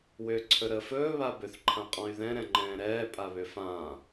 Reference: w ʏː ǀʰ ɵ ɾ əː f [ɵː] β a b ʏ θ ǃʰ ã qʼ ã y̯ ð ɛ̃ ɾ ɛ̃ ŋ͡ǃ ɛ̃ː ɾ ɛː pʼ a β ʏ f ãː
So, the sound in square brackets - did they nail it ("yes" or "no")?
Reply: yes